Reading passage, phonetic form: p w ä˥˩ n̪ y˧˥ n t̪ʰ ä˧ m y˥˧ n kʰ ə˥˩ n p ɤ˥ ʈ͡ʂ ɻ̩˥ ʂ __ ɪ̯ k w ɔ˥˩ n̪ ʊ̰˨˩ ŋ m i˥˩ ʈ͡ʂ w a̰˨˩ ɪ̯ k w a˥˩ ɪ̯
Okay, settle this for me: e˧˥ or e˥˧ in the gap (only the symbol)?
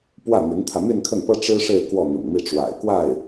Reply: e˥˧